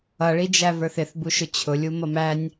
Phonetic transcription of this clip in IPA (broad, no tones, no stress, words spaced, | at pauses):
ʌɭid͡ʒæ və˞θɪθbuʃʊ t͡ɕʰʊlʲu mʌmænʲ